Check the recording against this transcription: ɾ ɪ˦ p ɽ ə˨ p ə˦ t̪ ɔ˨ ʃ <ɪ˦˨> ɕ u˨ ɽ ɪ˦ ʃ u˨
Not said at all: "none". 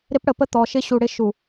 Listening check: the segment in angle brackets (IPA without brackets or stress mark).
ɪ˦